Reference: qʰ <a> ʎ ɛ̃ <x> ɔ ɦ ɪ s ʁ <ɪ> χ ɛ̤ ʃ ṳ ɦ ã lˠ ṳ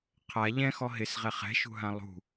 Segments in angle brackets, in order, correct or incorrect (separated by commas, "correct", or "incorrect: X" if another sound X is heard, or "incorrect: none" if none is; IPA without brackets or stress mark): correct, correct, incorrect: ɛ